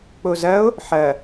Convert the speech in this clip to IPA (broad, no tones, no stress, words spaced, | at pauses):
k͡pozɐo̯ | ħɐ